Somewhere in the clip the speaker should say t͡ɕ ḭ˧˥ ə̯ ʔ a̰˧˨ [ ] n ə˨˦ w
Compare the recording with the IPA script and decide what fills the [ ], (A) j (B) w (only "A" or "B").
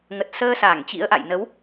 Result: A